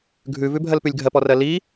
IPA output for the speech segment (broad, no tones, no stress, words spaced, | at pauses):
ɡʱʉvʉbʱɜlpʉlʲ ɡʱɜpɔrɜ li